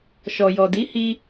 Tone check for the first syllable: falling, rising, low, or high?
low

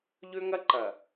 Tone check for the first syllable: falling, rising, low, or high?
high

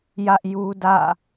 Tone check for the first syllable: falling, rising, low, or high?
high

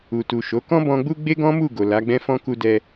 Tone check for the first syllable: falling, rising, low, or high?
low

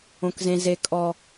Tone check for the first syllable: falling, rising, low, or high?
low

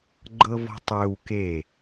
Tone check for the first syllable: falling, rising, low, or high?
high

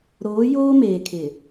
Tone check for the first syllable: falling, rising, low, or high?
rising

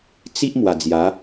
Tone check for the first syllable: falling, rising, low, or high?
high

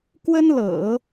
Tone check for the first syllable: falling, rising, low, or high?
high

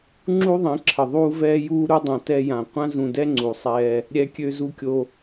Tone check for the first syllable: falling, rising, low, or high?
high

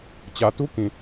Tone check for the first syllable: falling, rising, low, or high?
low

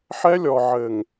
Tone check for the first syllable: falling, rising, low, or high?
high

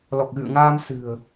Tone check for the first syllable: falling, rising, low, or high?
low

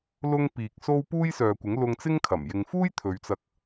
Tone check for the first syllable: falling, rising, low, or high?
high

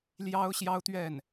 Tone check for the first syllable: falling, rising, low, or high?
high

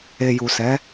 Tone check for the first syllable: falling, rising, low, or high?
low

